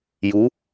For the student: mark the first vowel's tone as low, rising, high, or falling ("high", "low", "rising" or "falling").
rising